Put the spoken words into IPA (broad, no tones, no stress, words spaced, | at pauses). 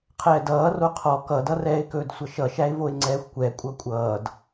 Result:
qʰɛːdʌː roqʰɔ kʌdʌrɛːɪ̯kɵːd sʷʌʃʌʃæɪ̯voɪ̯ ŋ͡ǀɛːxʷkʷɛ kʷʼʌkʷʼʌːd